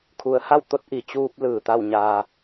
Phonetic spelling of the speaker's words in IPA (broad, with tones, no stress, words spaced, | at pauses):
kʰu˩˧ə̯ha˥˨wt̪o˧˥t̚ ʔi˩t͡ɕuː˧p̚lɯː˩ t̪a˥˨wɲaː˧